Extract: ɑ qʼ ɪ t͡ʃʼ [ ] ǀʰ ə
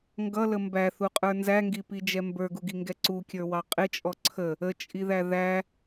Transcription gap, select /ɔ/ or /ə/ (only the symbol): ɔ